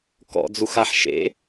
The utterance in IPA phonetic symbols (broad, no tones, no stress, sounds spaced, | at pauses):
k ɔ̰ d͡z u x a ħ ʃ ḛ